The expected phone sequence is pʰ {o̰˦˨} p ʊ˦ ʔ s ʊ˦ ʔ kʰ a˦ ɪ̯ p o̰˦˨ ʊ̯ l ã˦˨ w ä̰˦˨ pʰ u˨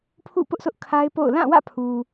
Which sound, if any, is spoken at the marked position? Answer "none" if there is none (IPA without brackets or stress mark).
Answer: ṵ˦˨